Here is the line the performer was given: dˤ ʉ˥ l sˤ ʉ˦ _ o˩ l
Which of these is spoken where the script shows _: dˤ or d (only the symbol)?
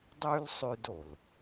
d